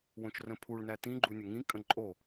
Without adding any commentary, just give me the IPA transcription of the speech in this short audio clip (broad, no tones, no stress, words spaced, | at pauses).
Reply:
wõt͡ʃrə̃pʰuɭn̪æ t̪ĩɡ͡ǃu nʲəŋĩkʼə̃ ǃʼo